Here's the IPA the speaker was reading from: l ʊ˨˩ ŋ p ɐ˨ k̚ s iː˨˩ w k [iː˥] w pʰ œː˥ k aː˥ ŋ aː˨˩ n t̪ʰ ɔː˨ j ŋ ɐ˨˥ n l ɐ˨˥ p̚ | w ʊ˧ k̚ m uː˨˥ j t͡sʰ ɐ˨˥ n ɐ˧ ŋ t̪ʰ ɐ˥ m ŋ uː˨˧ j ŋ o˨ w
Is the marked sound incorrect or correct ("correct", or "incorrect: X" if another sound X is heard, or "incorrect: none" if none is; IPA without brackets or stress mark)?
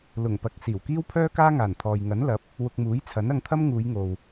correct